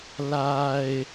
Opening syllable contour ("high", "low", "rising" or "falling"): low